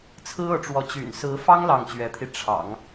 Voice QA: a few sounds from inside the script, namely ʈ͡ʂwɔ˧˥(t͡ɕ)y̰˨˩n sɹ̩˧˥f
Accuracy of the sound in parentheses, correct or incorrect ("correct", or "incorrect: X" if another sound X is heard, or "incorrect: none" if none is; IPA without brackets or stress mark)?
correct